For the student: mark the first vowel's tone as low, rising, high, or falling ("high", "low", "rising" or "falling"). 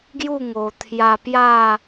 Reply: falling